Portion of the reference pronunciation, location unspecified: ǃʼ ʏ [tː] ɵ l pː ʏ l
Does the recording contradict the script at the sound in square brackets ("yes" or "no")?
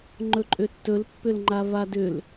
no